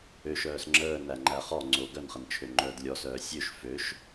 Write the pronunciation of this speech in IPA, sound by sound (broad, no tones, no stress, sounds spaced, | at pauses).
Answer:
ø ʃ œː s ŋ͡ǁ əː n æ ŋ͡ǃ æ χ ɔ ŋ͡ǀ o ɡ œ n χ ə n t͡ʃʰ ø ŋ͡ǃ œː d lʲ ɔ s œː sʲ ø ʃ f ø ʃ